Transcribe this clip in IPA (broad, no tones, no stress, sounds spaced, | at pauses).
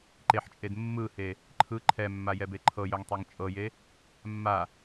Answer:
ǃ e ħ t͡ʃʼ e d mː ɯ h e | ǃʰ ɯ ǃʰ ɛ mː a j ɛ b e ǃʰ ɤ j œ ŋ tˤ e ŋ t͡ʃʼ ɤ j e | mː a